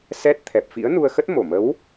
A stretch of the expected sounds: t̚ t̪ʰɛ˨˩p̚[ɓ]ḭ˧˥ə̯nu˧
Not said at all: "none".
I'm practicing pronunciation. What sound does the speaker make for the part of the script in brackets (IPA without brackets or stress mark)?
f